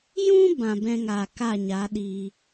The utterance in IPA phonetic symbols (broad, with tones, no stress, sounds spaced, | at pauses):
j ũ˦ b ã˨ b ɛ̃˧ ŋ aː˨ k a˦˨ ɲ a˨˦ ɗ iː˧